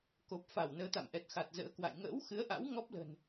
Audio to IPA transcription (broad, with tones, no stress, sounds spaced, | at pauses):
k o˨˩ p̚ f a˧˩ w n əː˨˦ t̪ a̰˧˨ m ʔ ɛ˨˩ t̚ x a˨˩ t̚ z ə̰ː˧˥ k w a̰˧˨ j ŋ ə̰ː˧˥ w x ɨ˨˦ ə̯ ʔ a̰˧˥ w ŋ ɔ˦˥ p̚ l ə̤˨˩ n